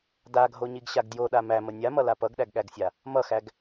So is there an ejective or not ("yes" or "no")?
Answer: no